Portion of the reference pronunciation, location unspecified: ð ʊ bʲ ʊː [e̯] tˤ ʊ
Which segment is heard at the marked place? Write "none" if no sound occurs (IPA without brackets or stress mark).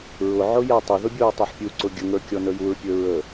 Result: ɐ̯